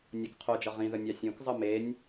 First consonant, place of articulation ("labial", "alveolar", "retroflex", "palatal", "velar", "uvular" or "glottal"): alveolar